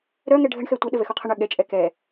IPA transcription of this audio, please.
ɾ œ ŋ ɛ ɖʱ ə ɳ x ɛ tʷ ə ɗ ə v ɛ x u qʰ ə ɳ œ ɠ ɛ t͡ʃʼ ɛ k ɛ

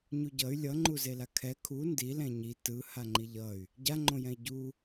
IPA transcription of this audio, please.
ɲ u ɟ ʌ y̯ lʲ ʌ ŋ͡ǃ u z e l a kʰ ɛ kʰ u n d i l ɛ̃ ɲ i t ɯ h a ŋ͡ǃ i ʎ ʌ y̯ | ɟ a ŋ͡ǃ õ j ɛ̃ i̯ ɟ u

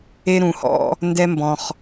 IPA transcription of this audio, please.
e˦ ɾ ũ˧ h ɔ̰˦ | n d ɛ˦ m b ɔ̃˧ χ

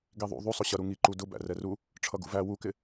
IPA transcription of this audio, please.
ɡ i ðˤ ṵ ðˤ u sˤ ʊ ɕ ʌ ɾ u ŋ i ǃ u d ʊ b æ̰ r ɛ r u | ʈ͡ʂʰ ʌ ɡ ṵ v æ w u k ɪ

